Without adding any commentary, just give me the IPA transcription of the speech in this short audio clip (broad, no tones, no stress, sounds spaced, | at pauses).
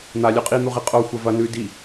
n̪ a lʲ ʉ qʼ i n̪ u ʁ i qʼ o xʷ ɐ v ɐ n ʉ d i